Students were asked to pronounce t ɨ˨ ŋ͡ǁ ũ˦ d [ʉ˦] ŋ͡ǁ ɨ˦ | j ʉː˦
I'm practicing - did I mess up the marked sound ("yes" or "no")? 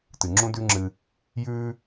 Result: no